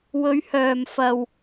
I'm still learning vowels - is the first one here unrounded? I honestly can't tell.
no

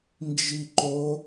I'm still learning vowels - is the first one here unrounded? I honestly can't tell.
yes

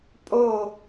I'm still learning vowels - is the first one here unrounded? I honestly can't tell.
no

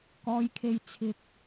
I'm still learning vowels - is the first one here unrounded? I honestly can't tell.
no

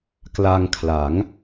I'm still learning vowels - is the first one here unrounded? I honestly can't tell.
yes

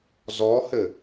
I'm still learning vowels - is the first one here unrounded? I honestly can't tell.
no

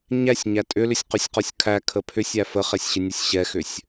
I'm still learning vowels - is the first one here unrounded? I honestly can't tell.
yes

